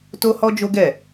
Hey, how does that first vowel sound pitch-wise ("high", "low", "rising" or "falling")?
high